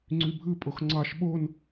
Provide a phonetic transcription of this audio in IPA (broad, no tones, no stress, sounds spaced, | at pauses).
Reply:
ŋ͡ǀ y bʱ ɯ pʼ o x ŋ͡ǀ ɑ ʃ ɓ o n